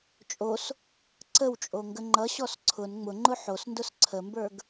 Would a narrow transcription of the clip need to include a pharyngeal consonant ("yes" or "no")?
yes